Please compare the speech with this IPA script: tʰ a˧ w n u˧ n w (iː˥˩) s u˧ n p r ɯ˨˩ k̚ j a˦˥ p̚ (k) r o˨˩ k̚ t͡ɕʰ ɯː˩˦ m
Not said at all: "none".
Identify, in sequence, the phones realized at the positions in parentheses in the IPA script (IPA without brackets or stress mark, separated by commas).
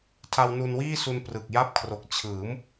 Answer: iː˥˩, kʰ